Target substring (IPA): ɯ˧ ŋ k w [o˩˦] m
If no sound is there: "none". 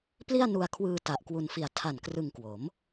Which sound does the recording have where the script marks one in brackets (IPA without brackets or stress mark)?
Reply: o˩˦